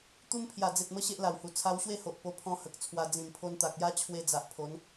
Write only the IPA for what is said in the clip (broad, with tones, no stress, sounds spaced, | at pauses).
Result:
t̪ u˦ m pʰ j a˨˩ d͡z e˨ t̚ m ə˧ ɕ e˦ ʔ l a˨˩ w h u˨˩ t͡sʰ a˧ w ɕ w e˥˧ h o˨ ʔ p o˧ pʰ ɔ̃˧ h ə˨ k̚ t͡sʰ w a˧ d͡z ĩ˨˩ m pʰ o˧ n t̪ a˨ k̚ j a˦ t͡ɕʰ w e˧ d͡z a˨ ʔ pʰ o˨˦ n